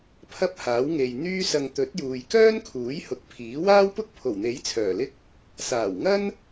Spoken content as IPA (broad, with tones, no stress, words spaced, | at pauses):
pʰɐ˥p̚haː˨˥wŋe˨j n̪yː˥sɐ˧ŋ t̪ɵ˨˥t̚juː˨jkœː˥nkʰuː˨˥j hʊ˨˥k̚pʰiː˨˥ waː˥wpʊ˥k̚pʰo˨˩wn̪e˨˥j t͡sʰœː˨˩lɪ˥k̚ | saː˨˩wŋɐ˥n